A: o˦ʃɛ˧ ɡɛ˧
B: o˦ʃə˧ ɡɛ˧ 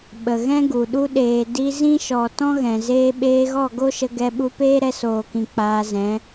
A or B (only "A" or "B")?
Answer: B